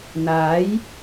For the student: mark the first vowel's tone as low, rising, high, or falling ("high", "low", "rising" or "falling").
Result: rising